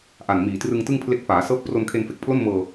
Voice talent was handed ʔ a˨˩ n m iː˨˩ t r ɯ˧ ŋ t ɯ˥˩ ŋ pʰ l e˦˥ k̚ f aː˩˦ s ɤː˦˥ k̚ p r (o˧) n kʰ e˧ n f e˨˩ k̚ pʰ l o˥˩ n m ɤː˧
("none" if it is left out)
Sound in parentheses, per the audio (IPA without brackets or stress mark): o˧